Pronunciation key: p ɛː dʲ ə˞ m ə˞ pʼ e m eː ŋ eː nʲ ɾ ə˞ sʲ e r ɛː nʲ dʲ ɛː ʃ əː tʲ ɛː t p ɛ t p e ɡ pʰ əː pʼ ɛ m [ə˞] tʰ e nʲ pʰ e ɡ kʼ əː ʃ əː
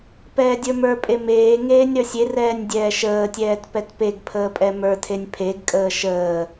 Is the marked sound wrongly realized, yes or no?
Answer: no